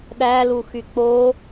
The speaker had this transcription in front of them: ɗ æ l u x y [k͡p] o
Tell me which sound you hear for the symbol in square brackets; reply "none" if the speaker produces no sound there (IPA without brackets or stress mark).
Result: k͡p